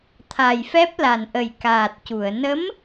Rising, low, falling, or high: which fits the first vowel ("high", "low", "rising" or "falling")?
low